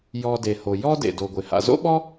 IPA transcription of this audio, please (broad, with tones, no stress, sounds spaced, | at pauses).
j ɔ˨ d e˩ h o˩ j ɔ˦ d ḛ˩ d o˩ ɡʷ ɪ˩ h a̰˨ z o̰˥ ɓ ɔ˥